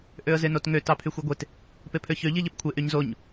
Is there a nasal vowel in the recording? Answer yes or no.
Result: no